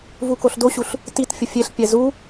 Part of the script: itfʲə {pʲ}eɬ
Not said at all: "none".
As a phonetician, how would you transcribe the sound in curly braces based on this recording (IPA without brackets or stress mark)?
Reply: fʲ